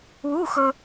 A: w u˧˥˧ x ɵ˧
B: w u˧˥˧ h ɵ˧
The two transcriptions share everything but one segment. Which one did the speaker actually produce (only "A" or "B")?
A